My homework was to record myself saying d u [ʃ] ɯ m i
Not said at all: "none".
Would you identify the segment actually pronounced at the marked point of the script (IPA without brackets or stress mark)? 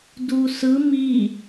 s